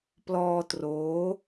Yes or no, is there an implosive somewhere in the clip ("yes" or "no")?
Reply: no